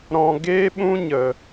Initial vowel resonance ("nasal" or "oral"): nasal